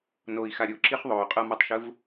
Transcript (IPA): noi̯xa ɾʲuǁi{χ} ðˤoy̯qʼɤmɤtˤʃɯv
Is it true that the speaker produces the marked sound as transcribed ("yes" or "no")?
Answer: yes